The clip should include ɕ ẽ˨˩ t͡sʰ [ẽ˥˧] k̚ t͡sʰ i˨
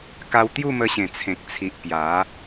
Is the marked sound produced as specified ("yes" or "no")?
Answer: no